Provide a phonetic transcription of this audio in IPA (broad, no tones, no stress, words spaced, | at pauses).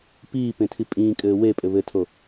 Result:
piːpẽtʰi pʼĩːkʼɘː wepʼɘ βɘtʰo